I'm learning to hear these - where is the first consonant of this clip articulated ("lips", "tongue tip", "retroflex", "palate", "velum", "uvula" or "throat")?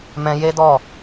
lips